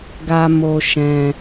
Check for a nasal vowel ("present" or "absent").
present